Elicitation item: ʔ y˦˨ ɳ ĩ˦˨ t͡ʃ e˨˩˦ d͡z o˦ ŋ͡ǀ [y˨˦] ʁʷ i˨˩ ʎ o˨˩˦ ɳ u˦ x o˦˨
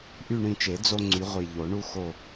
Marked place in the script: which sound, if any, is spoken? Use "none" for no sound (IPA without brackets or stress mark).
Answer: y˨˦